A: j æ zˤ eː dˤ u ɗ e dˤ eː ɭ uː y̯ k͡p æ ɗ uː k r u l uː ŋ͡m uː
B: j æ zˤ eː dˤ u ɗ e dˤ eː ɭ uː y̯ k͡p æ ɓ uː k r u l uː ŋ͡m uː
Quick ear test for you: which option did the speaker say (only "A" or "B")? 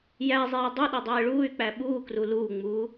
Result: B